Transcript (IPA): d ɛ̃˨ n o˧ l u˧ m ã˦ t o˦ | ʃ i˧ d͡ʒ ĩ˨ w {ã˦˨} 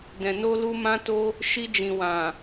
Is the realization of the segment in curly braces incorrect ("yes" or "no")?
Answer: yes